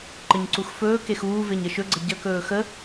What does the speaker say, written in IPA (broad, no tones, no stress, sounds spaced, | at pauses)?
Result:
ǃ ə ɲ ǀ u x f ɵː k e x uː v e ɲ ə ʃ ɵ ɡ͡ǀ ə ɟ ə k ɵː x ə